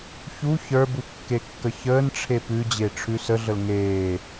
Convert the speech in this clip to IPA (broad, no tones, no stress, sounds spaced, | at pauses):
ç u ç ə˞ b u kː e kː ə ç əː n ʈ͡ʂʰ e p ʉ d͡ʑ e ʈ͡ʂʰ ʉ s ə ɮ ə l ŋ eː